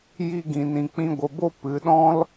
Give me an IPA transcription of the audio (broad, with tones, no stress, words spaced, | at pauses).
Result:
ji˦ɡĩ˧ nĩ˧k͡pĩ˦ ɡʷə˧bo˦ pɨ˨˦ɗɔ̃˦l